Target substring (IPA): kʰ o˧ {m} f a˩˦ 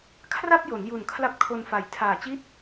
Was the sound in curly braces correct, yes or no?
no